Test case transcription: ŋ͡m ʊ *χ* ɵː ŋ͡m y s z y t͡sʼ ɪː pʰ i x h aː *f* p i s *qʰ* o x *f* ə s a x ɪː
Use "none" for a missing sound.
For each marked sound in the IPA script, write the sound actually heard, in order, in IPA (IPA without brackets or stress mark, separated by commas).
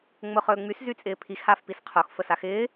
χ, f, qʰ, f